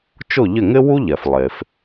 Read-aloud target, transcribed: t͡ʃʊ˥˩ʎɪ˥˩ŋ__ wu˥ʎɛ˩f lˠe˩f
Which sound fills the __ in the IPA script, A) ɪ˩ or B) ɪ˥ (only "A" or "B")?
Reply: B